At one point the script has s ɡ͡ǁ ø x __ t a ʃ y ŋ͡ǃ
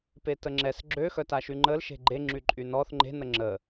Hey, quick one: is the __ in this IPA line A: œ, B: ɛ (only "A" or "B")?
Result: A